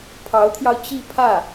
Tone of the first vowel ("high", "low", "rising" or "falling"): rising